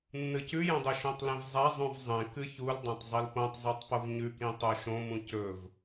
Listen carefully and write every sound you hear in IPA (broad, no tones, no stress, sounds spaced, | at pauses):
nː ɨ c ʉ j õ dˤ ɵ ʃ õ tˤ l ẽ v zˤ a zˤ ũ v zˤ ẽ k ɨ ç u l dˤ ã tˤ zˤ i l p õ tˤ zˤ e tˤ p o v ɲ ʉ k ĩ tˤ o ʃ õ m ũ c ɵ v